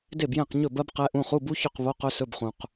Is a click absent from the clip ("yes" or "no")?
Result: yes